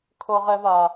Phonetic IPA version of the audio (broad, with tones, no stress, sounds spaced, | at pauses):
kʰ ɤ˨ ʁ ɛ˨ v a˨